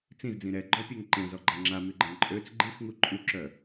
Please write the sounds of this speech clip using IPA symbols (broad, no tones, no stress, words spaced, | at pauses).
t͡sĩzd͡zĩ ɾɛɡ͡ǃɔpʲøŋ ǃẽzɔɡ͡ǃa ŋ͡ǁamyɡ͡ǃɛ̃ ǃʼøt͡s ɡ͡ǃixŋu ǃʼyǁœ